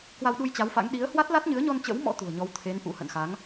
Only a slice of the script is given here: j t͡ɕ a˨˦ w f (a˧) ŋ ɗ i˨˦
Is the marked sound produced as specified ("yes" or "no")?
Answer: no